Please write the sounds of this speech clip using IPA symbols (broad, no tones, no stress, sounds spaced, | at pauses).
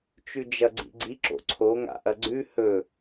t͡ʃ ʉ d͡ʒ ɐ ɡ͡ǀ ḭ ɡ͡ǀ i ǁ o̰ ǀʰ o ŋ a̰ ʔ ɐ ɡ͡ǀ ʉ h ɵ